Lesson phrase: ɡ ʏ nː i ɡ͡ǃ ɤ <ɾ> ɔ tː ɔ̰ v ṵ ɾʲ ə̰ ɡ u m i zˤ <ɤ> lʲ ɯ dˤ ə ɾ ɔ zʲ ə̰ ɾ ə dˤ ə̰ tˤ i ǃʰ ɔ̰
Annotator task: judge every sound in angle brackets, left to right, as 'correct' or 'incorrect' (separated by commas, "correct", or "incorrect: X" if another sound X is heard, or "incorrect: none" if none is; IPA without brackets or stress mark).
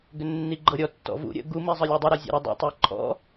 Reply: incorrect: ɾʲ, incorrect: ɯ